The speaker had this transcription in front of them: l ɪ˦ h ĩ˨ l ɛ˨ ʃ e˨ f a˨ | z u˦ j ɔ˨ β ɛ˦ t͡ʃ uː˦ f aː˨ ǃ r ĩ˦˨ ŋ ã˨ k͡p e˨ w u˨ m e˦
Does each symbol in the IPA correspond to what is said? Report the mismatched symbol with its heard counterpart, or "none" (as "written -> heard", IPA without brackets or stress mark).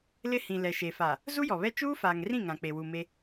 ǃ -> ŋ